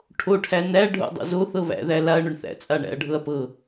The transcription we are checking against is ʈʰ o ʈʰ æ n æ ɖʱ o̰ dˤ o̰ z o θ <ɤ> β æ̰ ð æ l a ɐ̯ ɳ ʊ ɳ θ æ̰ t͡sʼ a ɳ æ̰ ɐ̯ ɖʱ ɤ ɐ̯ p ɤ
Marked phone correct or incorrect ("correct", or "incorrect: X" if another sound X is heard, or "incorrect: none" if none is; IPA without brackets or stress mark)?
correct